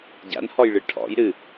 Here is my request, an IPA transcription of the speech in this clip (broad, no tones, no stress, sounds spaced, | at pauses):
ɟ a̰ n h ɔ j ɭ ɨ ʈʰ ɔ̰ j ɾ ɨ